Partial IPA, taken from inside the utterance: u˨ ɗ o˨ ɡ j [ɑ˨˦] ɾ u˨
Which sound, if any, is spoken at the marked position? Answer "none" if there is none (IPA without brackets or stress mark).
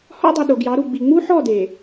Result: ɑ˨˦